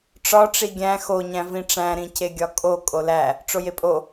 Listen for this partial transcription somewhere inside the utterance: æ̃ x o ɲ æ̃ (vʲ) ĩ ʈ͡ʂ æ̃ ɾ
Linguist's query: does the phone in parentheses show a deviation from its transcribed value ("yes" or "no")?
yes